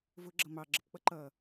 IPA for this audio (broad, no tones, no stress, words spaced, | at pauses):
vʊɡ͡ǁʌ mɑɡ͡ǁəpk͡pʌ ǃʌ